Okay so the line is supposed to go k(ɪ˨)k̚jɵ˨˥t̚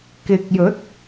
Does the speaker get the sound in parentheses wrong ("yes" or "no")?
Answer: no